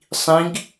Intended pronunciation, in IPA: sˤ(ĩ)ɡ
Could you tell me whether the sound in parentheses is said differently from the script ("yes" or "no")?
no